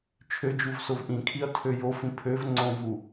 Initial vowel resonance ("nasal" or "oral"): oral